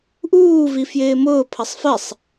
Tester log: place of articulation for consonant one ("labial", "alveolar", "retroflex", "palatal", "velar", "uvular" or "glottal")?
glottal